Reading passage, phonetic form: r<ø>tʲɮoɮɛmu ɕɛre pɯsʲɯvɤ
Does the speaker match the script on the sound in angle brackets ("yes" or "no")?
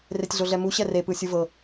no